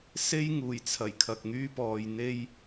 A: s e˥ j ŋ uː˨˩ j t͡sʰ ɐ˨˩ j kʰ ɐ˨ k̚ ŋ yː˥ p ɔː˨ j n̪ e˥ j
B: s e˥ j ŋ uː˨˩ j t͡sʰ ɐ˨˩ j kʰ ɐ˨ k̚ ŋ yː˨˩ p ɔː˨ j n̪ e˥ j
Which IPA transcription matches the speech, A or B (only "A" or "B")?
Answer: A